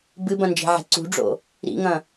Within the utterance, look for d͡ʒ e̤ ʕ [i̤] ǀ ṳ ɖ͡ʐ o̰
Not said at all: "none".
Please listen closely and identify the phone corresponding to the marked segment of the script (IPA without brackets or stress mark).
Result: e̤